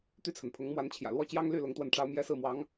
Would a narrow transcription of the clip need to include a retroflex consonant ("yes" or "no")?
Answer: yes